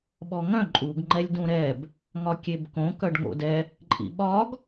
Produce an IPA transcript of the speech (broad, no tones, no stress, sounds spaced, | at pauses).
ɓ ɔ ŋ œ̃ ǃʼ u ɡ ŋ͡ǃ ɛ lʲ d ũ ɾ ɛ b | ŋ ɒ kʲ e b k õ k œ ɖ ŋ o̰ d ɛ | ǃʼ ḭ ɓ ɒ ɡ